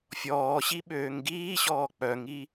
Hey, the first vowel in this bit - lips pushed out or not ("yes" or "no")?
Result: yes